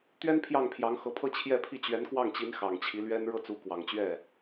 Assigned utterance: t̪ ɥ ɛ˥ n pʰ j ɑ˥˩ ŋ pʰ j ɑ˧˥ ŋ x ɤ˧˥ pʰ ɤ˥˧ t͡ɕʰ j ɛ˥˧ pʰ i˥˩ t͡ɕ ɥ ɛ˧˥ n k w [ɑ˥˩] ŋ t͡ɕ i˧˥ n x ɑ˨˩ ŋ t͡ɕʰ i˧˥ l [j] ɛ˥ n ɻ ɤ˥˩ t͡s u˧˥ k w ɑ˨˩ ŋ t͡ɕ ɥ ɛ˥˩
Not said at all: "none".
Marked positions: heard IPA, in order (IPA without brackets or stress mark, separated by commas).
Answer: ɑ˥˩, ɥ